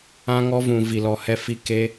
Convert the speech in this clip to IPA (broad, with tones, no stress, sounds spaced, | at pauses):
ã˧ ŋ ɔ˧ v ũ˨ v i˨ l ɔ˨ h ɛ˧ f i˧ k e˦